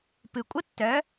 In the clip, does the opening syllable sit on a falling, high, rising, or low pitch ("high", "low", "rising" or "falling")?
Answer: low